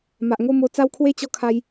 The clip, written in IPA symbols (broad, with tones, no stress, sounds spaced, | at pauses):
m a˨ ʔ ŋ o˥˧ m o˧ t͡s a˦ w kʰ w e˦ t͡ɕ ɔ˧ kʰ a˧ j